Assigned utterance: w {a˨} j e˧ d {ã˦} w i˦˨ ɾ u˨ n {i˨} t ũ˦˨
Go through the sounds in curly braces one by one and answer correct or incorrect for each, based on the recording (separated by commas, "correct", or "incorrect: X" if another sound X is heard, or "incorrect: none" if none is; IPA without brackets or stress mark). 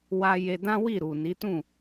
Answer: incorrect: a˧, correct, incorrect: i˨˦